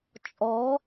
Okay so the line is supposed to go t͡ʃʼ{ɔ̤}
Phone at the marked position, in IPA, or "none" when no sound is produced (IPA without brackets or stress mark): ɔ